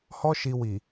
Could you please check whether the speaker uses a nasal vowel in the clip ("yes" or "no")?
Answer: no